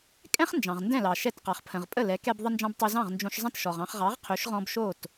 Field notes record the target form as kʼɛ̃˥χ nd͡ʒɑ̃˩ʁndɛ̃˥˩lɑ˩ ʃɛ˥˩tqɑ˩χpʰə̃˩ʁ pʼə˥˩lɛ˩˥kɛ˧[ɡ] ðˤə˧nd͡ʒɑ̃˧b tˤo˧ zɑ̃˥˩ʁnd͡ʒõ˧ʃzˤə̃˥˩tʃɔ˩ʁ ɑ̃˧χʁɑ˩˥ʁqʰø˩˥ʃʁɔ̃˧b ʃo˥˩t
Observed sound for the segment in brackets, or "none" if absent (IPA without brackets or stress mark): b